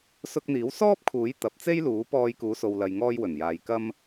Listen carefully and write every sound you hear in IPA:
s ʊ˧ k̚ n̪ iː˨˥ w s ɔː˥ p̚ kʰ uː˨˥ j t̪ ɐ˨ p̚ t͡s e˥ j l uː˨˥ p ɔː˧ j k uː˨˧ s o˨ w l ɐ˨ j ŋ ɔː˧ j w ɵ˨˩ n j aː˨ j k ɐ˥ m

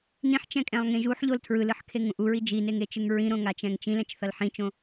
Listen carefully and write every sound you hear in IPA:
n ĩ ħ t͡ʃ ɛ̃ kʼ ɛ̃ lˠ ŋ ẽ ʒ u ħ ʎ o l tʰ ɹ ɯ l ɯ ħ kʰ e ŋ ũ ʔ u ɹ i d͡ʒ i n e ŋ e t͡ʃ ɯ ŋ ɹ ĩ ɾ õ ŋ a t͡ʃ ɛ̃ ŋ t͡ʃ ĩ l ɛ̃ t͡ʃ θ ʌ l ħ ĩ t͡ʃ õ

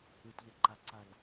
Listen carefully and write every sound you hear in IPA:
ɯ t ʎ ʌ ǃ a ǀ a l

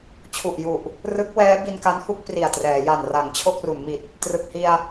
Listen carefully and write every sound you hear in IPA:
t͡ɕʰ u˨˩ ʔ j u˨˩ ʔ | r ɯ˦˥ k̚ w ɛː˦˥ b i˧ n k a˦˥ n h u˥˩ k̚ p r i˨˩ a̯ t r ɛː˩˦ j a˨˩ n r a˩˦ ŋ t͡ɕʰ o˥˩ k̚ r u˩˦ n m i˨˩ t̚ | t r ɯ˨˩ k̚ h i˧ a̯

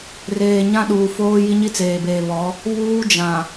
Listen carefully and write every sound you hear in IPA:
r eː˨ ɲ ã˦ ɗ uː˨ f oː˦ j i˦ ɲ i˦ t͡s eː˨ b eː˨ β ɔ˨˦ | β uː˦ d͡ʒ ã˨

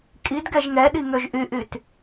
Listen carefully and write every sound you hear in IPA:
kʼ i d ɡ ɛ ʒ ŋ ɛ ɗ i ŋ ø ʒ ʔ y ʔ y t

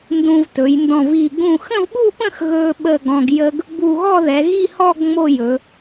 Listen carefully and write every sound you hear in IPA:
n d ũ˧ v t ɵ˩˧ j n d ɔ̃˧˩ v i˧˩ ɡ ũ˧˩ x ə̃˥˧ v ɓ u˥˧ p ə̃˥˧ x ɣ ɵ˧ ɓ ə˧˩ ɡ ɔ̃˧ ɡ j ə˥ ɡ | b u˧˩ ɣ ɔ˥˧ ð ɛ˩˧ ɣ i˥˧ h ɔ˥˧ ɡ ŋ͡m o˥˧ j ɵ˩˧

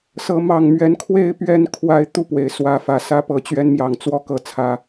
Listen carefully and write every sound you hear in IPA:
s ɤ˨˦ m ɑ˨˩ ŋ m ɥ ɛ˨˦ n kʰ w e˥˨ ɪ̯ p ɥ ɛ˥˨ n kʰ w a˦ ɪ̯ t̪ u˥˨ p w e˩ ɪ̯ s w ä˨˦ f ä˨˩ s ä˥˨ p ɤ˥˨ t͡ɕ ɥ ɛ˦ n m j ɑ˨˩ ŋ t͡s w ɔ˥˨ k ɤ˥˨ t͡sʰ ä˦

